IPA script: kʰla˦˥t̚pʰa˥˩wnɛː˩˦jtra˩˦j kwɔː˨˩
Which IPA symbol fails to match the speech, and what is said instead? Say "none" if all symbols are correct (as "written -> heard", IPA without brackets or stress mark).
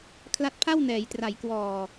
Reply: none